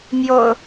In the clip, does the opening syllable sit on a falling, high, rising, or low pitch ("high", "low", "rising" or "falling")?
low